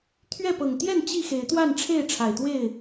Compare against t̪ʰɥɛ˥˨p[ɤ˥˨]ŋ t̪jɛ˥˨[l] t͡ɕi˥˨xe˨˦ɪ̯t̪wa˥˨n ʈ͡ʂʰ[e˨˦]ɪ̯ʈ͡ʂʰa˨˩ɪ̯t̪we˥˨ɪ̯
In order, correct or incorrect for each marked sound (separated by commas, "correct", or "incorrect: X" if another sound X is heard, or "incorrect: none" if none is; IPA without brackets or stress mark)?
incorrect: ɤ˨˩, incorrect: n, incorrect: e˥˨